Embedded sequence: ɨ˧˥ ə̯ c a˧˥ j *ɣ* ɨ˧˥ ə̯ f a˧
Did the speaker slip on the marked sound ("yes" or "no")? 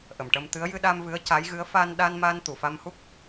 no